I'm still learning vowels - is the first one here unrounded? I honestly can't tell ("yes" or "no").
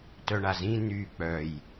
no